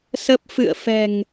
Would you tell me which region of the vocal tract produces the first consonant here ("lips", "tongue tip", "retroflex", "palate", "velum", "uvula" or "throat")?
tongue tip